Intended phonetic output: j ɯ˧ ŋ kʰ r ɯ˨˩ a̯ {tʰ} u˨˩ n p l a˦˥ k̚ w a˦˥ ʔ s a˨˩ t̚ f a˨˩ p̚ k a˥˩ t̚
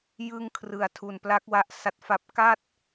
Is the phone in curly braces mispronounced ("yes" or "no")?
no